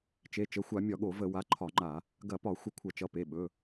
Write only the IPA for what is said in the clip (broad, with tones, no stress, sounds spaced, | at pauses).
t͡ʃ e˩˧˩ t͡ʃ ə˩˧˩ xʷ a˧˩˧ mʲ ɒ˧˩˧ ɠ o˧˩˧ v ə˧˩˧ w a˩˧˩ ǃʰ ɒ˧˩˧ ŋ͡ǃ a˧˩˧ | ɡ ɐ˧˩˧ p ɒ˧˩˧ xʷ ə˧˩˧ kʷʰ ɐ˧˩˧ t͡ʃ ʌ˩˧˩ p e˩˧˩ ɓ ɵ˩˧˩